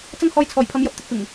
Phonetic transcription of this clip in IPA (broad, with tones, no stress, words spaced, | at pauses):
t͡sɐ˥ŋhɔː˧jt͡sʰɔː˨˩jpʰɐ˨˧m jɐ˧p̚t̪ɪ˧k̚pɪ˨˩ŋ